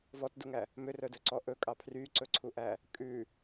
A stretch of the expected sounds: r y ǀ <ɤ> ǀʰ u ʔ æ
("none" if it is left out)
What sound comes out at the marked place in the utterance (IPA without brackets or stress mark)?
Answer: ɵ